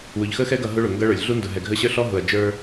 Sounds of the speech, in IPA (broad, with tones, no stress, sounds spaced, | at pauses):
w ʊ˨ ʎ x ə˦ x ɛ˦ ɡ ʌ˨ ɦ ʊ˦ ɭ ʊ˨ ŋ ɡ ʌ˦ ɭ ə˞˨ lʲ ɮ u˦ n d ʊ˨ ɦ ɛ˨ ɡʱ ə˦ ɕ ə˞˦ ɬ ɔ˦ ɦ ʊ˨ ɐ̯ d͡ʒ ə˞˦